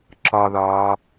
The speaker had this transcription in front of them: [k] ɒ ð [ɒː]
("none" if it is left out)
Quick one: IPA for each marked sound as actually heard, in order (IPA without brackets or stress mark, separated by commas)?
ǁ, ɒː